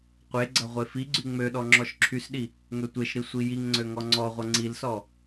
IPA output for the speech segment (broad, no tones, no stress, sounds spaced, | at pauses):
qʷ e ɡ͡ǀ ɐ ʁʷ e f i ɡ͡ǀ y ŋ͡m ø ɗ ɔ ŋ͡ǁ ɔ ʃ ǁʰ y s ɗ i | ŋ ø tʷ e ʃ ɾ i sʷ i j i ŋ ŋ͡ǀ ø ŋ ɔ ŋ͡ǀ ɔ ʁʷ ɐ ŋ͡ǀ i l s ɔ